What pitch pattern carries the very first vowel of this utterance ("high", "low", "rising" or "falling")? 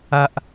high